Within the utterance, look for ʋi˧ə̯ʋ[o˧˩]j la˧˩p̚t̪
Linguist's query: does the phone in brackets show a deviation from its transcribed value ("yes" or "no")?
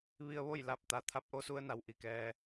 yes